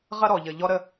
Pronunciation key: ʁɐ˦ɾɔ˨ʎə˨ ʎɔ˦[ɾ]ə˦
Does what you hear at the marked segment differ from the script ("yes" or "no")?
no